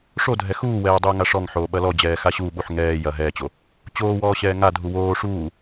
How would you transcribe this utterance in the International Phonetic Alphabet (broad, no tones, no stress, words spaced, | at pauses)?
ʂodʱɛ xuːwɛː dˤuːŋaʂɔŋħoː ɓɐlɔd͡ʑɛː xaɕuɓuħ ŋɛː jɐ ɦɛːt͡ɕo | t͡ɕoːwɔː ɕɛːŋadʱu woː ʂuː